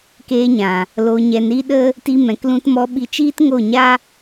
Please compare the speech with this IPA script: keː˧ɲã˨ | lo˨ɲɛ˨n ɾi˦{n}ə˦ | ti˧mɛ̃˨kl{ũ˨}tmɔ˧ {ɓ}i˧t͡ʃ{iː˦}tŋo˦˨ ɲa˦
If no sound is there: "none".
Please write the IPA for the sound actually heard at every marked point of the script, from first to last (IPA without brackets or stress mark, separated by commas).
ɗ, ũ˧, ɓ, iː˦